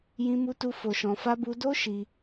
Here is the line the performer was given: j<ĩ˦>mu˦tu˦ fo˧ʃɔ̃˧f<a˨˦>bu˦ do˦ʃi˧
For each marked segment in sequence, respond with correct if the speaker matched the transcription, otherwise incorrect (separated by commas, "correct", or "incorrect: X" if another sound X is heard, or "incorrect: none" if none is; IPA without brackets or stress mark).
correct, incorrect: a˦